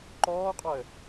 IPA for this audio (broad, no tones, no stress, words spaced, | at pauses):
ǃɔːqʼɔə̯